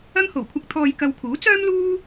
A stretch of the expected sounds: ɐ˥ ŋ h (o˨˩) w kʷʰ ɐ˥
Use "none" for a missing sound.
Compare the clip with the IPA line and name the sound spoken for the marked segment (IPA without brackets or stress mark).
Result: o˨˩